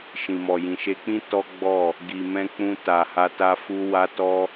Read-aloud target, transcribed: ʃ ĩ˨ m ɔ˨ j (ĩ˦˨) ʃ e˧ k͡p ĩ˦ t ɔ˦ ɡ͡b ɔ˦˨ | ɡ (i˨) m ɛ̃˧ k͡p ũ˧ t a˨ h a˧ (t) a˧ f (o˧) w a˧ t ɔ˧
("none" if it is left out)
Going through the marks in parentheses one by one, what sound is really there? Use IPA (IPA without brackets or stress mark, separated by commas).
ĩ˨, i˨, t, u˧